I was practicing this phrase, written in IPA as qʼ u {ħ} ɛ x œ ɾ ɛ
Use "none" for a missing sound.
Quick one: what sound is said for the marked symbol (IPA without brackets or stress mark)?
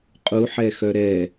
ħ